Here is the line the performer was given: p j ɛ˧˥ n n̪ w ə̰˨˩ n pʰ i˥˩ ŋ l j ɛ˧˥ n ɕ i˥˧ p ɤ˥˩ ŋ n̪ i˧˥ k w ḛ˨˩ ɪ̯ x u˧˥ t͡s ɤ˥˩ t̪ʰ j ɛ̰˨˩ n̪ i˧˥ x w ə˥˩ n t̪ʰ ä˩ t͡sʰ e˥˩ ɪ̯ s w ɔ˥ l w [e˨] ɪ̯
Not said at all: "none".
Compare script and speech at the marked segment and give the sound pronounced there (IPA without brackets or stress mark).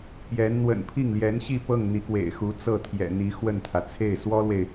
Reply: e˨